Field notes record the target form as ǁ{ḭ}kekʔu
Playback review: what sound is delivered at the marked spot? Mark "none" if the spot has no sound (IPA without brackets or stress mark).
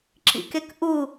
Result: ḭ